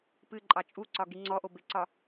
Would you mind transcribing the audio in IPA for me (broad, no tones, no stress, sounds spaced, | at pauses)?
p ɨ ǃʼ ɑ t͡ʃʼ u ǀ ɒ ɡ i ŋ͡ǀ ɔ ʔ o b ɪ ǀ ɒ